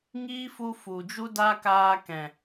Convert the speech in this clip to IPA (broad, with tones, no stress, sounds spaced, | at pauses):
ŋ iː˦ f u˧ f u˨ d͡ʒ u˦ d a˦ k aː˧ k ɛ̃˨